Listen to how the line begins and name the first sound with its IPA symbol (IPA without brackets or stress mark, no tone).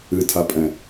ɨ